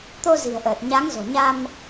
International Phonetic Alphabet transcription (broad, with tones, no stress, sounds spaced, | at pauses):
t̪ o˧ z i̤˨˩ ə̯ ʔ əː˨˩ t̚ ɲ a˨˦ ŋ z o̤˨˩ ɲ a˧ m